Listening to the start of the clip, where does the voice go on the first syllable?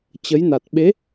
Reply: rising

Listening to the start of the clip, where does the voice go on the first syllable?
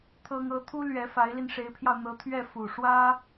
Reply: high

